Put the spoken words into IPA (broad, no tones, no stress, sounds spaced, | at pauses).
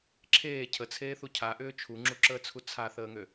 ǁʰ eː cʰ ə t͡sʰ eː θ u cʰ a ʔ ʏː t͡ʃʰ u ŋ͡ǁ u ǁ əː t͡sʰ u t͡sʰ a θ əː ŋ ø